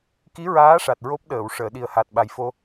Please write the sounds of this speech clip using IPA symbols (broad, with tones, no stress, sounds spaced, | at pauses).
k i˧˥ ɹ aː˧˥ ʂ a˨˩ t̚ ɹ o˦˥ p̚ ɗ əː˨˩˨ w ʂ əː˨˩˨ ɗ i˨˩ ə̯ h a˨˩ t̚ ɓ a˨˩ j f o˧